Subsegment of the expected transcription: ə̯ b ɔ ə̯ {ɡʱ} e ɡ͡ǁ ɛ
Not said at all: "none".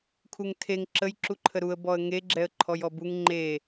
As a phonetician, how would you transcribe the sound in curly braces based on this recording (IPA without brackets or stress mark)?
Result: ŋ